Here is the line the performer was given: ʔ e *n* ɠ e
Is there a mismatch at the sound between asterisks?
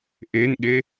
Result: no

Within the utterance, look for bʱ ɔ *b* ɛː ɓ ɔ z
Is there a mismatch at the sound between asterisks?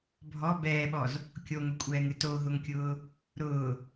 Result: no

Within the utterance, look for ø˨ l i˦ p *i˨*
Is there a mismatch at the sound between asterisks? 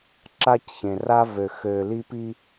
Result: yes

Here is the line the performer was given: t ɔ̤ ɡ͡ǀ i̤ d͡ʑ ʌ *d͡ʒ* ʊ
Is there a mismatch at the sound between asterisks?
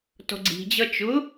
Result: yes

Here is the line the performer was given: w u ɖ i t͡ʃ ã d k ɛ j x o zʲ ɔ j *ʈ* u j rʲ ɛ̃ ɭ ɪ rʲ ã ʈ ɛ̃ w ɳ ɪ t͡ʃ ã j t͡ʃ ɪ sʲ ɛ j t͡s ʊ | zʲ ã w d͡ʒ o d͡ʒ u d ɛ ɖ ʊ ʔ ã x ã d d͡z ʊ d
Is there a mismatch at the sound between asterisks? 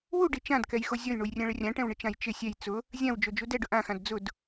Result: yes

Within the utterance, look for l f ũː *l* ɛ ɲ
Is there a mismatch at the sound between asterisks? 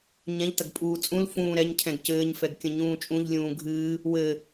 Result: yes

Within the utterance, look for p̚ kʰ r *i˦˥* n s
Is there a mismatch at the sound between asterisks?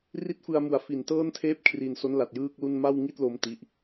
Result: yes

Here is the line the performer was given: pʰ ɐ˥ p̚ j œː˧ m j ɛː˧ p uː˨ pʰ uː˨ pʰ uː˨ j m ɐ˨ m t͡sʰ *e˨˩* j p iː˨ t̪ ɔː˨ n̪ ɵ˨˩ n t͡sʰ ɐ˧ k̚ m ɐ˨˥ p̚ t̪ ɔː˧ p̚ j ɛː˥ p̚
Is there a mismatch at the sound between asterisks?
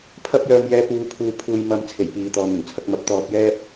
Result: no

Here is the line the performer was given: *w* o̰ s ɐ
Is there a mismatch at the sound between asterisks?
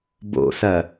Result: yes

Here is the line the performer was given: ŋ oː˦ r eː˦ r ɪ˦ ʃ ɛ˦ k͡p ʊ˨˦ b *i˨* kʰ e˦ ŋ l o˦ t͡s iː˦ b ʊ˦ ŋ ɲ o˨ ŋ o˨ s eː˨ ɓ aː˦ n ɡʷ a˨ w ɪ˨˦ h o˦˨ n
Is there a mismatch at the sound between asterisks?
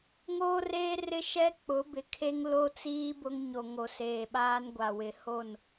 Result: yes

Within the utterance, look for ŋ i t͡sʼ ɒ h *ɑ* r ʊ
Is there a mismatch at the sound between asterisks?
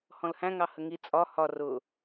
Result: yes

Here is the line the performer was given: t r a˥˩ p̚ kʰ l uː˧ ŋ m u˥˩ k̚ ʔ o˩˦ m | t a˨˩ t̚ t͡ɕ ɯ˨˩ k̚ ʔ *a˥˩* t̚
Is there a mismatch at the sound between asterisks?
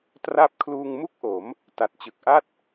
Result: no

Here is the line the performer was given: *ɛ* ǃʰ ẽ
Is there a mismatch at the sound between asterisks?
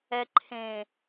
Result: no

